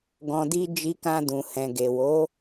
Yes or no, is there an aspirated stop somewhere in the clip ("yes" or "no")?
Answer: no